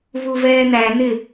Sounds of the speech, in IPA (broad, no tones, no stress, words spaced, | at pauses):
vuvɛːn̪æ n̪ɪ